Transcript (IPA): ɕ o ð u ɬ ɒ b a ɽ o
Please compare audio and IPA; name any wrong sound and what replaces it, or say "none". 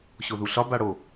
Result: none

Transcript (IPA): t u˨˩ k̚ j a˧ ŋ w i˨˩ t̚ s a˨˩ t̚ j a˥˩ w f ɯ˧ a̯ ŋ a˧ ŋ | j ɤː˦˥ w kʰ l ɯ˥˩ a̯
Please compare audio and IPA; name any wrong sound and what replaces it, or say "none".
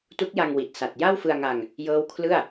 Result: u˨˩ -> u˦˥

